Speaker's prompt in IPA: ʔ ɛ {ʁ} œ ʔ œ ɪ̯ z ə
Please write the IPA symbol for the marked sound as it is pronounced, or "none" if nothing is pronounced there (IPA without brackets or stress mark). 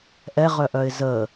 ʁ